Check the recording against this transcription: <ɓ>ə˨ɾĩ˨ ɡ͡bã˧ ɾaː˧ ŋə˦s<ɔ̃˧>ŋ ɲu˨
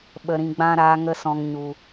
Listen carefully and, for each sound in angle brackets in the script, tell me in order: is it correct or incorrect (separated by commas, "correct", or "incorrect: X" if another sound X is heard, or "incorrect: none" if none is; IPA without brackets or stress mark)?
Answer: correct, correct